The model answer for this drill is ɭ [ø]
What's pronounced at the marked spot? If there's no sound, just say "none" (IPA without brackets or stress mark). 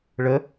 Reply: ə